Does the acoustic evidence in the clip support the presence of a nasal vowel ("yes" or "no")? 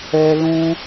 yes